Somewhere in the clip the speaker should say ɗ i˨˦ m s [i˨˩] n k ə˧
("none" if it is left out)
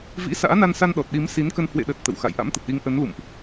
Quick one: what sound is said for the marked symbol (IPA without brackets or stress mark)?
i˨˦